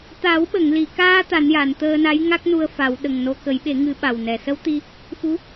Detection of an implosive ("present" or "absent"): present